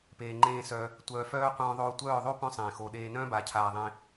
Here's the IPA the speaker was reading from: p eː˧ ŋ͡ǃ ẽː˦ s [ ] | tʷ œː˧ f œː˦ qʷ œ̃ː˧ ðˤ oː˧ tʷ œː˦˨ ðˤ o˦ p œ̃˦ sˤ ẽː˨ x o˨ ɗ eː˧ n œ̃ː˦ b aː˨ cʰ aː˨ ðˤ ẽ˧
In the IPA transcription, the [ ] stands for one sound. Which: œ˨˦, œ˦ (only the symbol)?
œ˦